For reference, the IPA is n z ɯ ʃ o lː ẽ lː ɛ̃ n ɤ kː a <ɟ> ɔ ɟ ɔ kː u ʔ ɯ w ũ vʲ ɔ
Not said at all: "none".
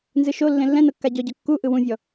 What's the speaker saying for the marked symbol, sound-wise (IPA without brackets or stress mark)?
ɟ